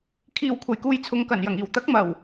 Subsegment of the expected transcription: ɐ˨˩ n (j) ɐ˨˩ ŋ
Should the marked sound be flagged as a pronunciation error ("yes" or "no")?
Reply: no